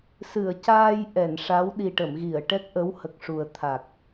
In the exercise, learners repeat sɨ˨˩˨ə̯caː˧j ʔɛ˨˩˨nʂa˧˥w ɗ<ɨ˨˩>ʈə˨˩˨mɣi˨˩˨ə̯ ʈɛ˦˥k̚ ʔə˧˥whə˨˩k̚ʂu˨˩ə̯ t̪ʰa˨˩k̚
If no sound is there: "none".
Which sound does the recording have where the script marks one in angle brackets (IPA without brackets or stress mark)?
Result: i˨˩